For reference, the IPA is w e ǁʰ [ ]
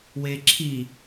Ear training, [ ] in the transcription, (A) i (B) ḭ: A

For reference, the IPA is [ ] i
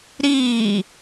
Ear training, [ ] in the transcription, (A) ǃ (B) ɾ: B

